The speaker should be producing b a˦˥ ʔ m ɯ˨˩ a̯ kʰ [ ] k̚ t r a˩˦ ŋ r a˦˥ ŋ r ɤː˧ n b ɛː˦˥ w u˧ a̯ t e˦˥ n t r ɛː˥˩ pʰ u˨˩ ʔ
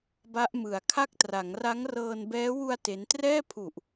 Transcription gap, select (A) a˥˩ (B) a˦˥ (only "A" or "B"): A